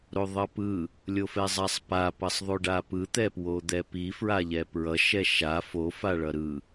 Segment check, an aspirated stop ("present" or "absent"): absent